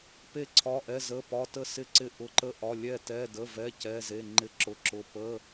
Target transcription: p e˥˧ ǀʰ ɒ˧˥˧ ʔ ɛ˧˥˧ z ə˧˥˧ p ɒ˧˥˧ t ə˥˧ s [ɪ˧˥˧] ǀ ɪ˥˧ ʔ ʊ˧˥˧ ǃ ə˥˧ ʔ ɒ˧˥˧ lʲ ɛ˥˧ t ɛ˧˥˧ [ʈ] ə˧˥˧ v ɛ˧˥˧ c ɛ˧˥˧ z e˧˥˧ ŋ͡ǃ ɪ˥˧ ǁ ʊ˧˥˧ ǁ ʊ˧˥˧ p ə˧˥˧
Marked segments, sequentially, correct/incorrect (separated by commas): incorrect, incorrect